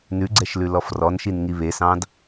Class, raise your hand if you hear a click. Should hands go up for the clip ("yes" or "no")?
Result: yes